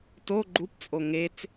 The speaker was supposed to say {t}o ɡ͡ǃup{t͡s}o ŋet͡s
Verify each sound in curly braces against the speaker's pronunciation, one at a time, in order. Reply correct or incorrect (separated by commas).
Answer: correct, incorrect